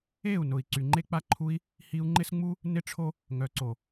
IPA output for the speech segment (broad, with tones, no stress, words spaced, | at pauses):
e˦˨u̯nʊ˨i̯ ǀy˨ŋ͡ǃe˧k͡pa˧ǃʰu˧i̯ | hi˧u̯ŋ͡ǃɪ˦sŋ͡mu˦ | nɪ˦ʈ͡ʂʰo˦ | ŋœ˨ǀo˨